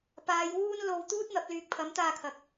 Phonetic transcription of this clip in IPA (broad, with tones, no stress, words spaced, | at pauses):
paː˨˧jwuː˥n lo˧w t̪uː˥t̚n̪ɐ˨˥p̚lyː˨k̚ pʰɐ˨˥mt̪aː˧kʰɐ˨k̚